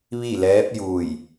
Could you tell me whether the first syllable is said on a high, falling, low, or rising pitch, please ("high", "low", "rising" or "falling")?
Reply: falling